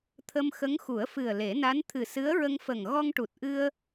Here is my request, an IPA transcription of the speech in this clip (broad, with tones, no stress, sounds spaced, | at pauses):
t̪ʰ ə˧ m x ə˧˥ ŋ x u˨˩˦ ə̯ f ɨ˨˩ ə̯ l e˨˩˦ n a˧˥ n t̪ʰ ɨ˨˩ s ɨ˧˥ ə̯ ɹ ə˧ ŋ f ə˨˩ ŋ ɣ ɔ˧ ŋ ʈ u˨˩ t̚ ʔ ɨ˧ ə̯